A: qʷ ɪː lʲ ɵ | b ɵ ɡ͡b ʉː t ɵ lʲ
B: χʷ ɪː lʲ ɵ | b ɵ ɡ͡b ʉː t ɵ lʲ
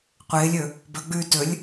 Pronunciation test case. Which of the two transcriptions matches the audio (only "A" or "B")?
A